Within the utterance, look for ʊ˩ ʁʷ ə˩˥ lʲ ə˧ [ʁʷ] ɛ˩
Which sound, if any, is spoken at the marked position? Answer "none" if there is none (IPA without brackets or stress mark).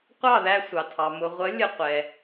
qʷ